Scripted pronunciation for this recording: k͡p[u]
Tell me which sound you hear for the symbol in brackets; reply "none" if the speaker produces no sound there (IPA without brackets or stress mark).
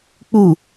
u